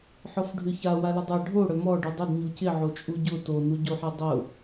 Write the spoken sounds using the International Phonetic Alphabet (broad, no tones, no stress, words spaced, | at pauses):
ħɔfɖʱʏça walɪdˤa ɖʱo ɽœmɔ ɖydˤɪd ɲucɪ ʕot͡ʃʼuɟʊ tonuɟoħe dˤʊ